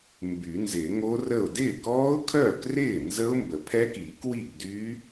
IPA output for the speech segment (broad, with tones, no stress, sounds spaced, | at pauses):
m b y˨˩˦ n z ɪː˨˩˦ ŋ o˦˥ r ə˥˩ ʊ̯ d ɪː˥˩ k ɔː˦˥ ʊ̯ kʰ œː˥˩ k r ɪː˥˩ n z ə˦˥ ʊ̯ m b ə˨˩˦ pʰ ɛ˦˥ k iː˨˩˦ k w i˥˩ ɡ d y˦˥